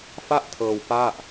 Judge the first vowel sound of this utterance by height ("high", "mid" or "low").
low